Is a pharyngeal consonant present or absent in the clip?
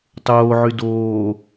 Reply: present